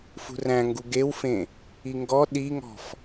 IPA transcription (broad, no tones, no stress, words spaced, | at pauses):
fṳræ̃ŋɡu ɡewfẽ | iŋɡɔ ɗiŋɔ̤f